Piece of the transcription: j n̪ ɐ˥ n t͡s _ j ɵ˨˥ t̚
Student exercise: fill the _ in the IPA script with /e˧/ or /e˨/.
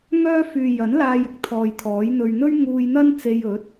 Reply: e˧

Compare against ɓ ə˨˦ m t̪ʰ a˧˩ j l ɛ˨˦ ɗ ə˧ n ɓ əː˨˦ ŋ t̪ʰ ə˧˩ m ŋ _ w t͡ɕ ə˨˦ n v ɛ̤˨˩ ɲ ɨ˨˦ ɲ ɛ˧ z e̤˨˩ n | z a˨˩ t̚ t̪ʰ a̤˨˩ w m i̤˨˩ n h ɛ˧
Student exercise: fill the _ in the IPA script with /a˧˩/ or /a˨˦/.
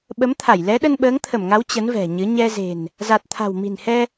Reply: a˨˦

